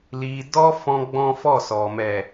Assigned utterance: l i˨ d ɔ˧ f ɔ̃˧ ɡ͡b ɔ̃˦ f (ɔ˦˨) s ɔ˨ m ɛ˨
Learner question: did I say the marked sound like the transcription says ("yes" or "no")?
yes